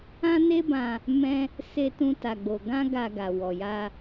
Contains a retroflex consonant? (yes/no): no